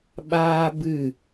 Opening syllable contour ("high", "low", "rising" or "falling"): high